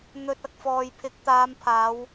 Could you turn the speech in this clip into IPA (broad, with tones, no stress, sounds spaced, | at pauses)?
n̪ ɵ˧ t̚ ɐ˧ k̚ f ɔː˨ j pʰ ɪ˨˥ k̚ t̪ aː˨˧ m pʰ aː˨˧ w